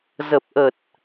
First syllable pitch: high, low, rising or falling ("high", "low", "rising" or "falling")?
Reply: low